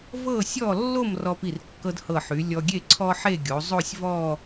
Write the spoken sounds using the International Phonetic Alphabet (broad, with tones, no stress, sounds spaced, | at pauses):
v ɤ˥˧ sʲ ɔ˥˧ lː o˥˧ m r ɔ˧ p i˧˩ r kː ɤ˧ d h ɤ˧˩ ħ y˩˧ lʲ ɔ˧ ɡʲ e˥˧ ǀʰ ɔ˥ ħ e˥˧ ɡʲ o˩˧ zˤ o˥˧ sʲ v ɔ˥˧